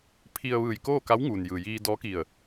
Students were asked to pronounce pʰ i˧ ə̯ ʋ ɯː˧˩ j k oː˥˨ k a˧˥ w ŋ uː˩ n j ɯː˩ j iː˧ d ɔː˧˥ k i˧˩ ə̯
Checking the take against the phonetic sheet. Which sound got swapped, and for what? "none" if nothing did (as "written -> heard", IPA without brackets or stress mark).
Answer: none